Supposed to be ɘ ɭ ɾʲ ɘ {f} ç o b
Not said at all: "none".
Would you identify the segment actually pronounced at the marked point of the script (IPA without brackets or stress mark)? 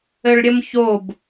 m